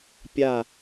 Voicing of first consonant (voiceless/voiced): voiceless